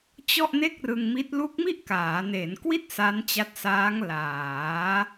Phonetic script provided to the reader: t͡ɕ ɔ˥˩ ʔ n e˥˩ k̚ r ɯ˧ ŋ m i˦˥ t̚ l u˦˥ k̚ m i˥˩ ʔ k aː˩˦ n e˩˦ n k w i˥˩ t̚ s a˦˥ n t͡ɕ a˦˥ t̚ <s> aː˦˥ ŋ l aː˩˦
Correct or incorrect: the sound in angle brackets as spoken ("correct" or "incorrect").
correct